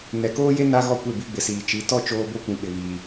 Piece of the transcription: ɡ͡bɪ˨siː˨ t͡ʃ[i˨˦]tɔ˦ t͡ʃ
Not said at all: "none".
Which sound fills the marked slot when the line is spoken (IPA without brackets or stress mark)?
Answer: i˨˦